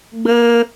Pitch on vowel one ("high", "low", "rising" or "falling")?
high